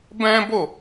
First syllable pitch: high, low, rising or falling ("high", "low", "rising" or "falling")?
high